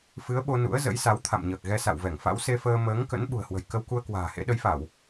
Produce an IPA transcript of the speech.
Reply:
fɨ˨˦ə̯ɓo˧ nṵ˧˥ə̯zə̰˧˥j sa˨˦wt̪ʰa̰˧˨mɲəː˨˩k̚ɣɛ˧ sa̰˧˨wvɛ˧˩ŋfa̰˧˥w se˧fəː˧ məː˨˦ŋkə̰˧˥n ɓṳ˨˩ə̯hwə̤˨˩j kə˧wku˧ə̯ kwa̤ː˨˩hḛ˧˥ɗə˨˦jfa˧˩˨w

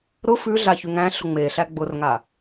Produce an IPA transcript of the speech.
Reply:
ɾʊ fʉɮa çʉŋæ̃ɬʊ ŋ͡meɬæ ɡ͡bʊrŋa

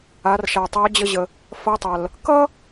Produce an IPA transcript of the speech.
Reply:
a˩˧r ʃa˩tˤa˧˥d͡ʑə˧ʑə˩ | fɐ˧˥tˤɐ˩l | kʌ˥

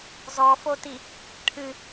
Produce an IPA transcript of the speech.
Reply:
zɔfoti | ʈʰɨ

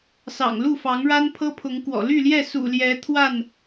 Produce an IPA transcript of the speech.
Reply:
sɑ̰˨˩ŋlu˥˨fɑ˨˦ŋɻa˦n pʰɤ˦pʰʊ˨˦ŋkwɔ̰˨˩ ly˥˨ljɛ˥˨ sṵ˨˩ljɛ˨˦ t̪ʰwa˥˨n

